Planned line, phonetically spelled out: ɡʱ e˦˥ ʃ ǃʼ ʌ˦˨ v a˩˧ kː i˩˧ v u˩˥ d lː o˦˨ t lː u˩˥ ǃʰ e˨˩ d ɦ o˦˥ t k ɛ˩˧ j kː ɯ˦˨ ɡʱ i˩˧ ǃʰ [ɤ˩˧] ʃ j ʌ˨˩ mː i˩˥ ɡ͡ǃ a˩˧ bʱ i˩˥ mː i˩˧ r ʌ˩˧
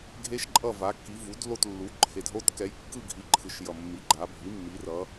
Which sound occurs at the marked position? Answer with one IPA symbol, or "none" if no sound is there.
ɯ˩˧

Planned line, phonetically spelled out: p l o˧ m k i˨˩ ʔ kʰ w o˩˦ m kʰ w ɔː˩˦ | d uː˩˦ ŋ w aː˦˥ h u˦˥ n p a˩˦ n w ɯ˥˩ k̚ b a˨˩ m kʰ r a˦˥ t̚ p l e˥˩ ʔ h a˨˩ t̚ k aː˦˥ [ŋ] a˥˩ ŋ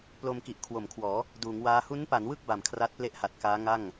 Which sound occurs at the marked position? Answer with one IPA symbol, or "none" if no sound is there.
ŋ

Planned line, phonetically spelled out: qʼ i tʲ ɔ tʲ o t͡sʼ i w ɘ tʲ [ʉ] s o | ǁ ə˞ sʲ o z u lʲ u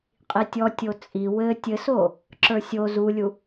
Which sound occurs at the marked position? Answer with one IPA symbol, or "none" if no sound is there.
ɘ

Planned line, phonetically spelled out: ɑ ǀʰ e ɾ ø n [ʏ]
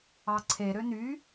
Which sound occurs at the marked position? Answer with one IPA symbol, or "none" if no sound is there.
y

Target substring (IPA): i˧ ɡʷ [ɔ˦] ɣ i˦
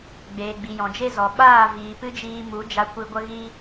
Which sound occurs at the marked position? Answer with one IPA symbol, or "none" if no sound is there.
ə˦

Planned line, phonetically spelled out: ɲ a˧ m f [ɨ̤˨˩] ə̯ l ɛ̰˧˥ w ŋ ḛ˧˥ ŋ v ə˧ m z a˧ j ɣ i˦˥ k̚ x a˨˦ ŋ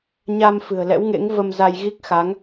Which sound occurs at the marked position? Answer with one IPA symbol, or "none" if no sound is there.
ɨ̤˨˩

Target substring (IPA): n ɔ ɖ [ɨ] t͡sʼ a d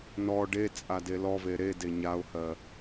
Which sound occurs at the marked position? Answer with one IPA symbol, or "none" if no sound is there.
e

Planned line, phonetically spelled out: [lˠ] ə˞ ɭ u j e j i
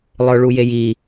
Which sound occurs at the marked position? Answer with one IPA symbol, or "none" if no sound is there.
lˠ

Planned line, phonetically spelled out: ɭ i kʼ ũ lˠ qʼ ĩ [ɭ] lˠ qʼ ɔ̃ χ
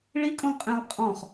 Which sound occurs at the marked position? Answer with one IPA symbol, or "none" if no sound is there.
none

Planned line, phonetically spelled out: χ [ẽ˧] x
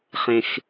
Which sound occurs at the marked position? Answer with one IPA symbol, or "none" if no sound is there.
ẽ˧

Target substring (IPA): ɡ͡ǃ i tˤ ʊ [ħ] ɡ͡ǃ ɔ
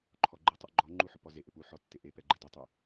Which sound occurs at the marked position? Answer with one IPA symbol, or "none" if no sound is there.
ʔ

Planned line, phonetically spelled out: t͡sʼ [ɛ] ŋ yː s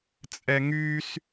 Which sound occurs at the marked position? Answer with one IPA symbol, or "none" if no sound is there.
ɛ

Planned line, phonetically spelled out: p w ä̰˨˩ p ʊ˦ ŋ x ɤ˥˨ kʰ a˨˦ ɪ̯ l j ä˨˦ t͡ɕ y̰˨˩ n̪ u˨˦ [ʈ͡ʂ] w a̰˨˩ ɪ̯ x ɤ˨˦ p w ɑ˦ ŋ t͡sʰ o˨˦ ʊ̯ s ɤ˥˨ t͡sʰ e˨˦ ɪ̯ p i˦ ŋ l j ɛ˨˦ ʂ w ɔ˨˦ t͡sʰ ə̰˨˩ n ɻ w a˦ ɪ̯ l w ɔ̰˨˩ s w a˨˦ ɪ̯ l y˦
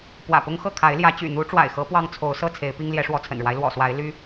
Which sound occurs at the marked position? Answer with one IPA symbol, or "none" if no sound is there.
ʈ͡ʂ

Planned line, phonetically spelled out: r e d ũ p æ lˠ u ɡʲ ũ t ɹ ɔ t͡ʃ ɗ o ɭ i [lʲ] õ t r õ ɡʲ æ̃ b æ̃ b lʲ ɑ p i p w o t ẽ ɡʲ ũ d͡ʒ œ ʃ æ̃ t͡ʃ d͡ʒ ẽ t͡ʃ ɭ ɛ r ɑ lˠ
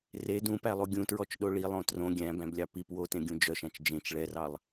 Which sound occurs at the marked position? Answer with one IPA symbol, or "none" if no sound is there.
lˠ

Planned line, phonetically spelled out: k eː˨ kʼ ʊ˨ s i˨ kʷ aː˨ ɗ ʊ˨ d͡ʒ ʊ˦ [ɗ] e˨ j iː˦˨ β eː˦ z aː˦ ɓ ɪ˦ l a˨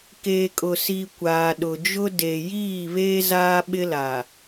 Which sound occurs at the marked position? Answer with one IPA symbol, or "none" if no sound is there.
d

